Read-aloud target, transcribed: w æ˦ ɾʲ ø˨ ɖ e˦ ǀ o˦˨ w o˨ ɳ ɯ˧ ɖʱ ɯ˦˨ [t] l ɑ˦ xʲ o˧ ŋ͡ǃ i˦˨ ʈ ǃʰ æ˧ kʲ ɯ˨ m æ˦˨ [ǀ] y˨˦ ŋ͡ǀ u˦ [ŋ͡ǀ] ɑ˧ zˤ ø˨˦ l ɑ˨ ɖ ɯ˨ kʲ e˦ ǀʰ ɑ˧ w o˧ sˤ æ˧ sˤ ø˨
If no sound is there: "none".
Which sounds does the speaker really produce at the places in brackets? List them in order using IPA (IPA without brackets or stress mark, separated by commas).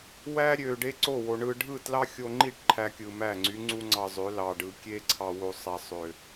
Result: t, ŋ͡ǀ, ŋ͡ǀ